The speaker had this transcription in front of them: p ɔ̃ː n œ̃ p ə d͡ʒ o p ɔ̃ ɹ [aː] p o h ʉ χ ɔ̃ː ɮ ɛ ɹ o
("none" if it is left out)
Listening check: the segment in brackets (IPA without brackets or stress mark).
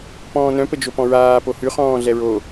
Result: aː